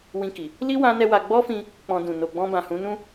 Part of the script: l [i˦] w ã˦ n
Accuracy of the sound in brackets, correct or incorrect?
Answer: correct